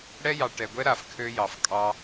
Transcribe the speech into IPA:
ɽ ɛ˦ j ɑ˨ ʈ ɛ˨ ɡʷ ɛ˦ ɾ a˨ f kʰ ø˦ j ɑ˨ f kʼ ɑ˦

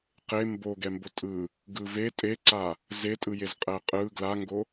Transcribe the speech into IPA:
q e m b o ɡ ɛ m b o tʼ ɯ | ɡ ɯ v e tʼ e ǀ a | z e tʼ ɯ j e z qʼ ɛ qʼ ɯ ɡ l a ŋ ɡ o

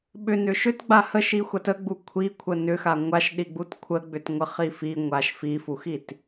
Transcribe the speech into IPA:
ɓ ʏ n ʏ ʃ ʏ t ɡ͡b a h ə ʃ i xʷ a t ə ɡ͡b u kʷʰ i kʷʰ ə n ʏ x a ŋʷ a ʃ ɗ i ɡ͡b u t kʷʰ ə ɡ͡b ʏ t ŋʷ ə χ i f i ŋʷ a ʃ f i f u x i t

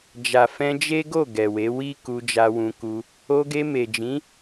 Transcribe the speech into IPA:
d͡ʒ a˨ f ɛ̃˧ d͡ʒ e˦ ɡ o˦˨ ɡ ɛ˨ w e˨˦ w i˦ k u˧ d͡ʒ a˧ w ũ˧ k u˧ | o˧ ɡ e˧ m e˨ d͡ʒ ĩ˨˦

